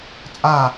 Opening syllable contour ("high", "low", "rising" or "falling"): falling